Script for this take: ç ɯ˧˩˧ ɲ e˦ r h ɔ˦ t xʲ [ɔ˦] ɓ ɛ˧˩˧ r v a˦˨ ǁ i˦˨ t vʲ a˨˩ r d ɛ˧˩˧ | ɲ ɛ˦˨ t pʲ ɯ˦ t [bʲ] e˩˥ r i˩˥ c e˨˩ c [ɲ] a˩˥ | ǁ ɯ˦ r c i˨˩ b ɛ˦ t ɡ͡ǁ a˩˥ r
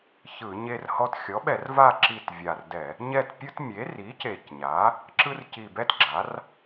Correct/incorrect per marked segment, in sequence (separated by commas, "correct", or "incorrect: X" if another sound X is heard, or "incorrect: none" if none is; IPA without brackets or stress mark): incorrect: ɔ˩˥, incorrect: mʲ, correct